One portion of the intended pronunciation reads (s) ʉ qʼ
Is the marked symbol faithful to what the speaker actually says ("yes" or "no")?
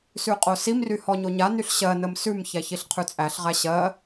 yes